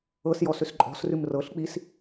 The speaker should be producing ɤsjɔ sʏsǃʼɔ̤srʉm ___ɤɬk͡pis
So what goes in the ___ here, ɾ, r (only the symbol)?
r